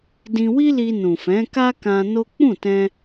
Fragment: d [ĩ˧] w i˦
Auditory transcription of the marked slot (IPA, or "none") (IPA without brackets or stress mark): ĩ˧